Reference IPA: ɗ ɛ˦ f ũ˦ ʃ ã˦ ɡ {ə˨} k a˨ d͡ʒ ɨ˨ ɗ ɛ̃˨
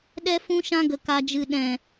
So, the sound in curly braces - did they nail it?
yes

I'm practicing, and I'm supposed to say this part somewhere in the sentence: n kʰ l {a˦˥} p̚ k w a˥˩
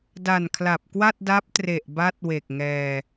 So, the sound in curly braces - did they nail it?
no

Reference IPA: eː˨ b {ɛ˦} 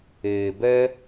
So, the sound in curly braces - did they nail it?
yes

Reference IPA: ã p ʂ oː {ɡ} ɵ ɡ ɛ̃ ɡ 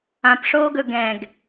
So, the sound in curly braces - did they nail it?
yes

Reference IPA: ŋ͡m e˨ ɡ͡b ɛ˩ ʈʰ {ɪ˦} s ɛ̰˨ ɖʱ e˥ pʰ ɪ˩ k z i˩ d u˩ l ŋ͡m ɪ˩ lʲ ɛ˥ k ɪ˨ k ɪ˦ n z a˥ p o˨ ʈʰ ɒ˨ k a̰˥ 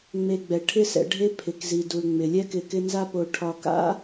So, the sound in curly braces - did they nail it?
yes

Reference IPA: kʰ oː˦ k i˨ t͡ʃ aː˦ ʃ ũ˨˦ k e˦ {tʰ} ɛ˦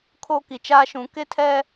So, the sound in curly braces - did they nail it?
yes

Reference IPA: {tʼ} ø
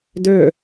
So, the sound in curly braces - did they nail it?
no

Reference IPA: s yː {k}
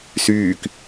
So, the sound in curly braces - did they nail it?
yes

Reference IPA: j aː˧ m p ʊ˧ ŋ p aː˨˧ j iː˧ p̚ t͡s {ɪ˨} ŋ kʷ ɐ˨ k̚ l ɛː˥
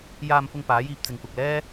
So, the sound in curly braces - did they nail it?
yes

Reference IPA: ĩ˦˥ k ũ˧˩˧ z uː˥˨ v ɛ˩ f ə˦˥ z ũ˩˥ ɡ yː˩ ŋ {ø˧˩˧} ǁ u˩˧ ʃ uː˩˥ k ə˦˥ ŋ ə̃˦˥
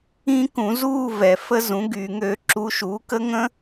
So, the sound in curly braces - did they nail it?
yes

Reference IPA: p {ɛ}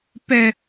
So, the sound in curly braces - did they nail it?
yes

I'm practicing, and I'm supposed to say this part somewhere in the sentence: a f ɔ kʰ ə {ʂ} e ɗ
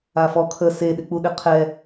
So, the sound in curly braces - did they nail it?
no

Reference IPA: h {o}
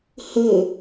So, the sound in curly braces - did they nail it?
yes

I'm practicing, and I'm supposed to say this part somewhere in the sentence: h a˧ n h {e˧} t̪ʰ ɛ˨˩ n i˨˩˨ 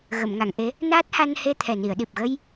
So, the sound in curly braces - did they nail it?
yes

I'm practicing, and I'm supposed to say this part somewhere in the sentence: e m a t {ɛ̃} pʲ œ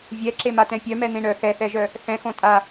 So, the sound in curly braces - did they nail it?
yes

